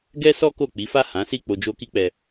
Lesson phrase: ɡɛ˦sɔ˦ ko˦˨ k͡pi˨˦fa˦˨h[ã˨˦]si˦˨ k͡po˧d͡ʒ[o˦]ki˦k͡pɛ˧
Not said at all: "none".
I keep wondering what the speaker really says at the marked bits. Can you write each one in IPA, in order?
ã˨˦, o˦

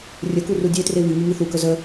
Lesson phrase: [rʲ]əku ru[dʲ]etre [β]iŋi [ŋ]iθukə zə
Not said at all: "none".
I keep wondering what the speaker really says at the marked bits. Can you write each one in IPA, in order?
rʲ, dʲ, β, ŋ

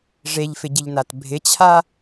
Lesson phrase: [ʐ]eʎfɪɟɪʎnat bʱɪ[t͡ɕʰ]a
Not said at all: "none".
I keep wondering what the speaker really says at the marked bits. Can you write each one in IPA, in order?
ʐ, t͡ɕʰ

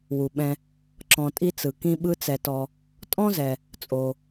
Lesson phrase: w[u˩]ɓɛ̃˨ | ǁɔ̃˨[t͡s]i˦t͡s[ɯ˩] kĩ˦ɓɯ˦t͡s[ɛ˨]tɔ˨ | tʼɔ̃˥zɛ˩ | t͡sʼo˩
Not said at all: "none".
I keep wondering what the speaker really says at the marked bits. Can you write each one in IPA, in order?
u˩, tʼ, ɯ˩, ɛ˨

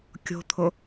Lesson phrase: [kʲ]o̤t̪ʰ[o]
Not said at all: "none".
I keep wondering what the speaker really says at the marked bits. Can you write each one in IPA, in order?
kʲ, o

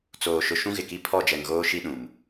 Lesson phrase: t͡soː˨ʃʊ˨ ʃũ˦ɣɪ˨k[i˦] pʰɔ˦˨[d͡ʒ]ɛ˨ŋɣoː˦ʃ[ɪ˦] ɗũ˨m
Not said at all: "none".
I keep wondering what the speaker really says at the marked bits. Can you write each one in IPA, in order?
i˦, d͡ʒ, i˦

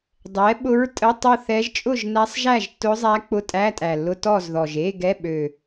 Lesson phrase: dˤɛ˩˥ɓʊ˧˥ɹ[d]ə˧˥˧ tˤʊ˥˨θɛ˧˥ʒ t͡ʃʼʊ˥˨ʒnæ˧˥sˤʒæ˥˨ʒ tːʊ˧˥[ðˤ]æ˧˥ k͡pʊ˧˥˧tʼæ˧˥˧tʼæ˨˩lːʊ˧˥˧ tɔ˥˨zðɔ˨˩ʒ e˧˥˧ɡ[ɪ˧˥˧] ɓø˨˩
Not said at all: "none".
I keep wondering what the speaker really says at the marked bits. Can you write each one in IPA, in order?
tʼ, zˤ, ɛ˧˥˧

